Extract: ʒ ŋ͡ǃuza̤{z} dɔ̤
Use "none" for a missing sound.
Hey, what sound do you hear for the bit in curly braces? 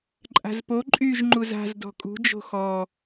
z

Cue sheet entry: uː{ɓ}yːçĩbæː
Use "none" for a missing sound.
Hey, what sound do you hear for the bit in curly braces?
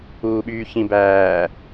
ɓ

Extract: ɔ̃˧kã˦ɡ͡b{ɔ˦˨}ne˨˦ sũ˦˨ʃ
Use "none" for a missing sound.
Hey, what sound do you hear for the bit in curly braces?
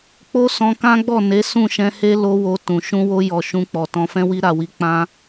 ɔ˦˨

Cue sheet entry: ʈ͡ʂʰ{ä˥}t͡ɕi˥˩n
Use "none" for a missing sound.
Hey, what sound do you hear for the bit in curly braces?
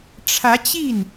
ä˧˥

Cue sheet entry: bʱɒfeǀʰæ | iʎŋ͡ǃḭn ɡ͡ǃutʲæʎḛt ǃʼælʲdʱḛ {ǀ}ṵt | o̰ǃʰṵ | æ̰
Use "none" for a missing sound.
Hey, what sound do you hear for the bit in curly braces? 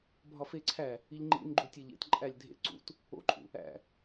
ǀ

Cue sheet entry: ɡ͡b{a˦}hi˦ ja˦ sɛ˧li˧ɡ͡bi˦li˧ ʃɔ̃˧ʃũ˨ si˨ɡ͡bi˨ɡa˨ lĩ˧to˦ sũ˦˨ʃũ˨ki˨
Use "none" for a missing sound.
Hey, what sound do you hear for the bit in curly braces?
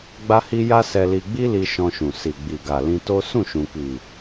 a˦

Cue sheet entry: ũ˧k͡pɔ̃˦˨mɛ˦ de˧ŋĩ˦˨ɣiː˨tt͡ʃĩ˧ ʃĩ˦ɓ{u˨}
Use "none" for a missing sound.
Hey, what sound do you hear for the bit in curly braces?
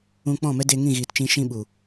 u˨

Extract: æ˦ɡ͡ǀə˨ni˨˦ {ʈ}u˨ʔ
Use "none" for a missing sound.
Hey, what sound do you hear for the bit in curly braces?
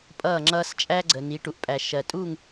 ʈ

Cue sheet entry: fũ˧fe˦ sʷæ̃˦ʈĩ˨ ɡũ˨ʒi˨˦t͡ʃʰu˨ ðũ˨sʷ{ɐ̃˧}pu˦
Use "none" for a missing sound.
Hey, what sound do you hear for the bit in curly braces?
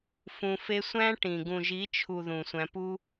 æ̃˧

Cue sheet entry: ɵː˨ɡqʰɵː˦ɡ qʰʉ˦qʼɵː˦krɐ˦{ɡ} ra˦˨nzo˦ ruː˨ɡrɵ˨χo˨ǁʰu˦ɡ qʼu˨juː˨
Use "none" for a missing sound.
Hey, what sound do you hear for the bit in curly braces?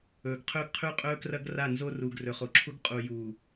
ɡ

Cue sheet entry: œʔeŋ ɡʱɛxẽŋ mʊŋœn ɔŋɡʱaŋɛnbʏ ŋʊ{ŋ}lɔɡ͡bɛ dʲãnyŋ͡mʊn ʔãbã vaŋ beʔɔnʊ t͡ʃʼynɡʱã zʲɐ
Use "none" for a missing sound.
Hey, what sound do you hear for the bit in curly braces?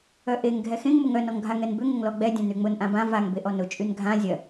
ŋ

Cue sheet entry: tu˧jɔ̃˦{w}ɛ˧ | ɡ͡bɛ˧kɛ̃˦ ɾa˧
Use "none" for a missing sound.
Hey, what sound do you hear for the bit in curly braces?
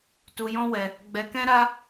w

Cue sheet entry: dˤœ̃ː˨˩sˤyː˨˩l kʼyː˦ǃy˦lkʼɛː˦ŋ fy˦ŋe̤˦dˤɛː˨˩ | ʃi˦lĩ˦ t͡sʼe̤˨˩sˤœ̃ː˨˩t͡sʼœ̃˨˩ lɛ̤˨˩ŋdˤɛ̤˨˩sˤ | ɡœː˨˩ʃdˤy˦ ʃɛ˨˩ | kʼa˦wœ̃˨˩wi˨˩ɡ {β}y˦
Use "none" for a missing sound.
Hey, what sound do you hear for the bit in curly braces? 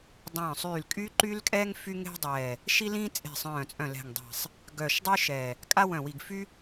f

